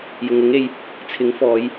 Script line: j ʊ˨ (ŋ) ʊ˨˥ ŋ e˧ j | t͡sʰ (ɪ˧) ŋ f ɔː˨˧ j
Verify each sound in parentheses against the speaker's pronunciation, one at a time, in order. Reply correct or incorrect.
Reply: correct, incorrect: ɪ˨˥

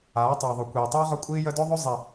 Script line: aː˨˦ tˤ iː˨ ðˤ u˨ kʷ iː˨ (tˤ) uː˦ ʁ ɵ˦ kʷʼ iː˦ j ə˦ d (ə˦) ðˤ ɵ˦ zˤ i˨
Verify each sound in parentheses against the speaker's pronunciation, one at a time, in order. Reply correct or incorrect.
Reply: correct, incorrect: ɵ˦

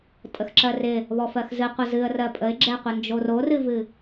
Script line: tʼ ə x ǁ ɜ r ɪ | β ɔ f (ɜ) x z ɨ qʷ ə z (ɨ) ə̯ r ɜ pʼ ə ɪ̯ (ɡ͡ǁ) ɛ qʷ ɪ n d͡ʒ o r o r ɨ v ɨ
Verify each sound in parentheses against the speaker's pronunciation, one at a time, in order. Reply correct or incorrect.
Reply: correct, correct, correct

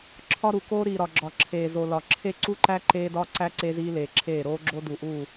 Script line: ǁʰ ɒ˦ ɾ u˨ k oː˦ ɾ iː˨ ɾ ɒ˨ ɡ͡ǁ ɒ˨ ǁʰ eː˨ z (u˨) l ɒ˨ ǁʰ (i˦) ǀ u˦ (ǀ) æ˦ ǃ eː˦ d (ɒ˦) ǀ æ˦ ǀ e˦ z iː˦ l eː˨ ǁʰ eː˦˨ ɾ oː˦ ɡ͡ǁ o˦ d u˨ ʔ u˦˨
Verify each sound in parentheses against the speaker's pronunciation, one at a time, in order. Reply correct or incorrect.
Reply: incorrect: o˨, incorrect: e˦, incorrect: ǃ, correct

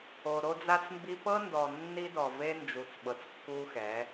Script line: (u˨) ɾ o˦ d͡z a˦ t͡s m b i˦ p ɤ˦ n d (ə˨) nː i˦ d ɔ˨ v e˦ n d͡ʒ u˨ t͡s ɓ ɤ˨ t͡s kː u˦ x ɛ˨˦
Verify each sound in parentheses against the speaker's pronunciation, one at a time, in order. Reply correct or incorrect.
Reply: incorrect: o˨, incorrect: ɔ˨

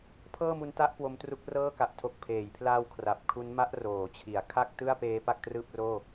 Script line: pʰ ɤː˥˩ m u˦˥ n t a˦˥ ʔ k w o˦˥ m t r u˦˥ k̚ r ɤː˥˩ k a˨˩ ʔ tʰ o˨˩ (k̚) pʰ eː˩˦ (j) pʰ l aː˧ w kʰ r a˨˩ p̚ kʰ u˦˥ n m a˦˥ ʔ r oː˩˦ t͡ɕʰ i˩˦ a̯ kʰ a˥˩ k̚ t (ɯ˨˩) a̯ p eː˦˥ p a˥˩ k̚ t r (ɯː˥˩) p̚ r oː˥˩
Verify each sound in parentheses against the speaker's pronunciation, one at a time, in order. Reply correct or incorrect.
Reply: correct, correct, incorrect: ɯ˥˩, correct

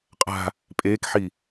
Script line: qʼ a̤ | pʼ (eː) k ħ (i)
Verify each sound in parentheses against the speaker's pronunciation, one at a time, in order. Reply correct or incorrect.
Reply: correct, correct

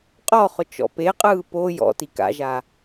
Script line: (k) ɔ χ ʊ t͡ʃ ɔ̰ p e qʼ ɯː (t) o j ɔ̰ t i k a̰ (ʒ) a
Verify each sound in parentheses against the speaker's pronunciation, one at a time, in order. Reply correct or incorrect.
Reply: incorrect: qʼ, incorrect: p, correct

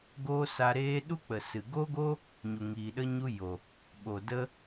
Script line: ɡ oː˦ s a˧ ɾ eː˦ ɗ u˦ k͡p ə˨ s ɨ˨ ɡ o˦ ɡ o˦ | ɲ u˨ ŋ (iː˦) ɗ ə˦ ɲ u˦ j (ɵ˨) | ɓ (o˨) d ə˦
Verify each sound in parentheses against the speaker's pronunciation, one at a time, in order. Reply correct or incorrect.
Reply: incorrect: iː˨, incorrect: o˨, correct

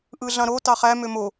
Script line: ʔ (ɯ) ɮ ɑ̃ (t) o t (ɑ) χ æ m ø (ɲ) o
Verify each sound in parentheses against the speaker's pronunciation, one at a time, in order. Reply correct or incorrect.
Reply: correct, incorrect: ɾ, correct, incorrect: m

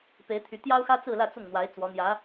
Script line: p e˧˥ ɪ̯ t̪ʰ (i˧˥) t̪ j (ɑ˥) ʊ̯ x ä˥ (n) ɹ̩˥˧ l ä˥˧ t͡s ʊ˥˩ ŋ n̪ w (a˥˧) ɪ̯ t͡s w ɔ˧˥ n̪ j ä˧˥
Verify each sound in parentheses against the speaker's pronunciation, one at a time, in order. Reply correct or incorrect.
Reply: incorrect: y˧˥, correct, incorrect: t͡s, incorrect: a˧˥

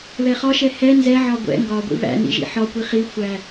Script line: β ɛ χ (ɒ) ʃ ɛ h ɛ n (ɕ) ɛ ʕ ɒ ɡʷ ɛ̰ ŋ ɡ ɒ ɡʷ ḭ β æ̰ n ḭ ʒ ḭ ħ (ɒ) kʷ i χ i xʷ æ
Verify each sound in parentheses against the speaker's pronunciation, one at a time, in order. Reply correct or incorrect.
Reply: correct, incorrect: z, correct

